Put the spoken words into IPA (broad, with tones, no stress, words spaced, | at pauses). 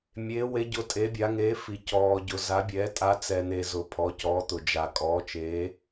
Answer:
mʲeː˨˦we˨˦ɟʊ˨˦ tʼe˨˦bʲa˨˦ŋeː˨˦fi˨ cɔː˨ɟʊ˨ za˨˦bʲɛː˨˦ tʼa˨˦t͡sɛ˨n̪e˨ zʊ˨ pʰɔ˨˦cɔː˨˦t̪ʊ˨ d͡ʒa˨kʼɔː˨˦ t͡ʃeː˨˦